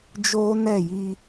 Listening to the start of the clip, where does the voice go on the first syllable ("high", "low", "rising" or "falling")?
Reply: high